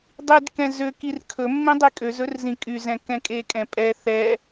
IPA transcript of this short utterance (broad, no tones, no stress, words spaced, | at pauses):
dˤidkɛ̃ zøkir kʰɵmːẽdˤi kʼøzɵrzĩ kʼyzɛ̃kɛ̃ kʼekʼɛ̃pʼɛ θɛ